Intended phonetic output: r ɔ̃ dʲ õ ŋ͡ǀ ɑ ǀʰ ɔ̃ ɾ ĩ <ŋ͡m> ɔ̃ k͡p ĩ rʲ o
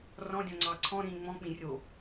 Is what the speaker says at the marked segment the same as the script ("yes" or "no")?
yes